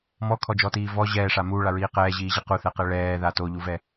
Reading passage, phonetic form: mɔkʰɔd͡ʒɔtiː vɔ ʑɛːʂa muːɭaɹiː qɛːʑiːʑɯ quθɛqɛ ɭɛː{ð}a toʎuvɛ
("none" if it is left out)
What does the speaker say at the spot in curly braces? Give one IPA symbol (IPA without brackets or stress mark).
ð